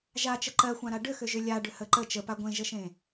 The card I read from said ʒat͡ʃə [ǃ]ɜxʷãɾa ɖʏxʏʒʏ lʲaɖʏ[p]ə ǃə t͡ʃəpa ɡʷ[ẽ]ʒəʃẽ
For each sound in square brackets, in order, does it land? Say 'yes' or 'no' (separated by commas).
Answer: yes, no, yes